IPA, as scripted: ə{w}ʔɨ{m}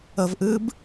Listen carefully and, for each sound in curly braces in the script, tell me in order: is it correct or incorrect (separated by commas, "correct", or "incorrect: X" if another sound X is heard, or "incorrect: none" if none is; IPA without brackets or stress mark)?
incorrect: v, incorrect: b